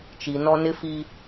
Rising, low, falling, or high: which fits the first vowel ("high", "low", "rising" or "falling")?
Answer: low